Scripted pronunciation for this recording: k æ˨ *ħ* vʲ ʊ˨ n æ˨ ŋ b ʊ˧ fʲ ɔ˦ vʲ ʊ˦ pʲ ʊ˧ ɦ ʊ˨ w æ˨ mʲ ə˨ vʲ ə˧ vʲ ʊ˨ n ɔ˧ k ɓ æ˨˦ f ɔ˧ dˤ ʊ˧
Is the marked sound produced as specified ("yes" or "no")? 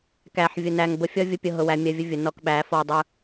yes